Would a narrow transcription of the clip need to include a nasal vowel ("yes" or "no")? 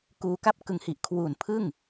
no